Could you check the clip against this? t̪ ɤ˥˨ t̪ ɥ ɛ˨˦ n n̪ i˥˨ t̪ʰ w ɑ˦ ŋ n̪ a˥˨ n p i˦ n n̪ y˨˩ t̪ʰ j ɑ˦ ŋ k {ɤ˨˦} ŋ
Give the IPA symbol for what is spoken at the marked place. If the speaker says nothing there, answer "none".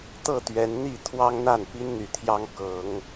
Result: ɤ˨˦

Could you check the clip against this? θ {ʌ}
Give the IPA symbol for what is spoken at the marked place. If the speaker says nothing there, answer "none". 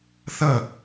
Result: ʌ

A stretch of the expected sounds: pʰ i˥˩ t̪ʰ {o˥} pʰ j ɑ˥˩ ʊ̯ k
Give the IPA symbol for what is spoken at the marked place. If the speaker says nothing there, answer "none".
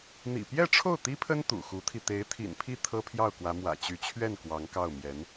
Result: ɤ˥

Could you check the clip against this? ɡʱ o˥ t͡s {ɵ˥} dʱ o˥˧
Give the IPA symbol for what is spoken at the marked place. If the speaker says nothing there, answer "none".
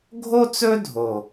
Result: ɵ˥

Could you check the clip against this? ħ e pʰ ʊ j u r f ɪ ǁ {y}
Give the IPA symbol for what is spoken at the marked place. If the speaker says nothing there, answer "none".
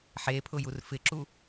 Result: u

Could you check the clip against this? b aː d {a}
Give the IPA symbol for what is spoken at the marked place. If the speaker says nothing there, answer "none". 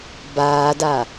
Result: a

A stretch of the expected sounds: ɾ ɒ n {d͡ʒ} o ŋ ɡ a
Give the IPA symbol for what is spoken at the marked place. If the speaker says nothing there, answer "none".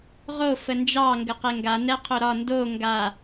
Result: d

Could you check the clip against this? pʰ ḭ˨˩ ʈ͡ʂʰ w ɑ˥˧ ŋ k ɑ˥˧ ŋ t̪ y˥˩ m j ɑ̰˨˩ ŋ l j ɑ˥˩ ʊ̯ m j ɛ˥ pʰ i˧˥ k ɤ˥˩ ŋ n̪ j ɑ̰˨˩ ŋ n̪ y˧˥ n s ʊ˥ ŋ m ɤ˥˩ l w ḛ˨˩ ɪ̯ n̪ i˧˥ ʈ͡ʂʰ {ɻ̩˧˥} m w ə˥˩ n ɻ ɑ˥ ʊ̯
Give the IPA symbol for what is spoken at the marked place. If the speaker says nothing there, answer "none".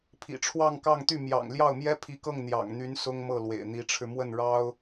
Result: ɻ̩˧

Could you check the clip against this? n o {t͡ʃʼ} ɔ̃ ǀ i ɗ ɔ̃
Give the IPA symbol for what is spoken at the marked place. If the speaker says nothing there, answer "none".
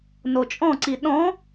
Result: t͡ʃʼ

